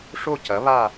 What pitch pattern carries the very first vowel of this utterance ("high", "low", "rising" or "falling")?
falling